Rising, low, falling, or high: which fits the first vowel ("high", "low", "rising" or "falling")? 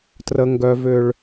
high